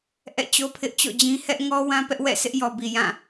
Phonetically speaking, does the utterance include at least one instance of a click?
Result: no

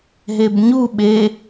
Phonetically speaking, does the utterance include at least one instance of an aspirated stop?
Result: no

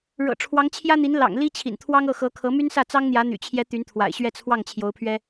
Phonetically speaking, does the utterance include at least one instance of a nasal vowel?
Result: no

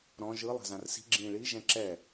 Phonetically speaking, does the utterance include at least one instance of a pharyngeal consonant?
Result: no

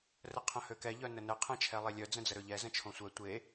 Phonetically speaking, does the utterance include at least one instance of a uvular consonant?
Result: yes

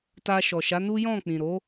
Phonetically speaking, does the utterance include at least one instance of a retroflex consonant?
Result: no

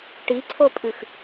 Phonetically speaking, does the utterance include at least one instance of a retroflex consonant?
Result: yes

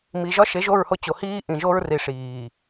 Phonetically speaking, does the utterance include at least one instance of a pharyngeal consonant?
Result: no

